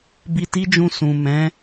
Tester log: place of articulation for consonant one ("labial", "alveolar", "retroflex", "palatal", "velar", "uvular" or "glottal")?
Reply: labial